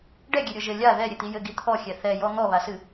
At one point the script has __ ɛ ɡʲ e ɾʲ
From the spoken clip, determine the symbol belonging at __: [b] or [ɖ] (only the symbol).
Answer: ɖ